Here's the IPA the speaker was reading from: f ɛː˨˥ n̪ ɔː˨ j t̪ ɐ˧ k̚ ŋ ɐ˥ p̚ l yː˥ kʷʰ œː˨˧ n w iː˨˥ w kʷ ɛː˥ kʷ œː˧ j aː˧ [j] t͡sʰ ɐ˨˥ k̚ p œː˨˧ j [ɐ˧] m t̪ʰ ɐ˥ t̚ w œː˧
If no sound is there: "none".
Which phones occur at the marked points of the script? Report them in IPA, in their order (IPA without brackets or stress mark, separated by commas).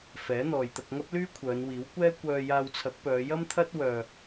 w, ɐ˥